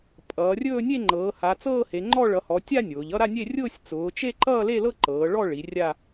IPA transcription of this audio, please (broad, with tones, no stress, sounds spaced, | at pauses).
pʼ ʌː˩˧ rʲ ɵː˥˧ nʲ e˥˧ ŋ͡ǃ ɤː˩˧ h a˩˧ t͡s ɤː˥˧ h e˩˧ ŋ͡ǃ ɔ˥˧ ɭ ʌ˩˧ h ɔ˩˧ tʲ a˥˧ nʲ ʊː˩˧ ʎ ʌ˥˧ ɾ a˥˧ nʲ e˥˧ rʲ ʊː˥˧ sʲ t͡s ʊː˩˧ t͡ʃ e˥˧ ǃ ʌː˥˧ l e˥˧ l ɤ˥˧ ǃ ɤː˩˧ ɭ ɔ˥˧ ɭ i˩˧ rʲ a˥˧